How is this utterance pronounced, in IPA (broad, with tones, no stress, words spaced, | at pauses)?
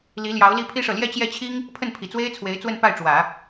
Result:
li˧˥ljɑ˧˥ʊ̯ li˥˩pʰi˥ʂɤ˨ ljɛ˥˧t͡ɕjɛ˥˩t͡ɕʰi˥ŋ | pʰə˥˩npʰi˨˩t͡swe˥ɪ̯t͡sʰwe˧˥ɪ̯ t͡swə˥˧npa˥˩ɪ̯ ʈ͡ʂwä˨˩˦